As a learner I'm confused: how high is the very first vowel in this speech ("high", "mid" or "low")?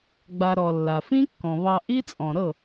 low